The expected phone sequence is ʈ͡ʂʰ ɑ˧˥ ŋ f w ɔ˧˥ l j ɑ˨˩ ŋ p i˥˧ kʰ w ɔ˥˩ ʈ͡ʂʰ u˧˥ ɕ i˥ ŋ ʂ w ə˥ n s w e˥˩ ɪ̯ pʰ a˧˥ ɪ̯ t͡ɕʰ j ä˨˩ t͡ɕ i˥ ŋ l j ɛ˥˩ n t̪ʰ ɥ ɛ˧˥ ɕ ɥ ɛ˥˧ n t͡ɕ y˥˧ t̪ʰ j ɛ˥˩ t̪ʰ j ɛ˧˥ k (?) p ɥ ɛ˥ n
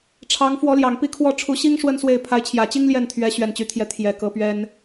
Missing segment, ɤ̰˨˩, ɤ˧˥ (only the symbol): ɤ˧˥